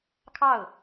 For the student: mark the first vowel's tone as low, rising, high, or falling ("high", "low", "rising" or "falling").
falling